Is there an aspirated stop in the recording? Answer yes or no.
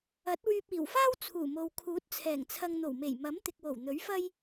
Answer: yes